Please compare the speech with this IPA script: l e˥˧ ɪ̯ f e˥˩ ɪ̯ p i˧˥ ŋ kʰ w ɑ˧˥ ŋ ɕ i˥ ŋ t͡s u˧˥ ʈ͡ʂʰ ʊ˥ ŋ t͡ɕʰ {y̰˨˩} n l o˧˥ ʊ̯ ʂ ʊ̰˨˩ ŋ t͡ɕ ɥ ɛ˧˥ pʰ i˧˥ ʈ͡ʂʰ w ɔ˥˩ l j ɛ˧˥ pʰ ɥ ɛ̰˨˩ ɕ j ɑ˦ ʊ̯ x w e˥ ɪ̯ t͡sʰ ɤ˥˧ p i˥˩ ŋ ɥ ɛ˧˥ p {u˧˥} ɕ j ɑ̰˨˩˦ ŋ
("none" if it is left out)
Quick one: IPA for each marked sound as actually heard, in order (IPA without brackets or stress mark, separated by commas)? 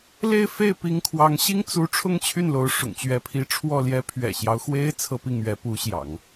y˥˩, u˧˥